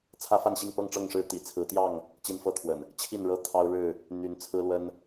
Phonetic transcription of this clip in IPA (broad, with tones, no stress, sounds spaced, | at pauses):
t͡sʰ ä˦ f a˥˨ n ɕ i˥˨ ŋ p ɤ˥˨ ŋ ʈ͡ʂ ɤ˥˨ ŋ ʂ ɻ̩˥˨ t̪ ḭ˨˩ t͡sʰ ɹ̩˨˦ t̪ j ɑ˥˨ ŋ | t͡ɕ i˦ n f ɤ˥˨ t̪ʰ w ə̰˨˩ n | t͡ɕʰ i˥˨ n ɻ ɤ˦ t̪ʰ ɑ˦ ʊ̯ ɻ ɻ̩˥˨ | n̪ y˨˦ n t͡sʰ ɹ̩˦ l w ə˦ n